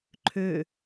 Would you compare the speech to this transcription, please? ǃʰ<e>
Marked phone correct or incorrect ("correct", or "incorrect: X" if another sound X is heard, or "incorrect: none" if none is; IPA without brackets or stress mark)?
incorrect: ø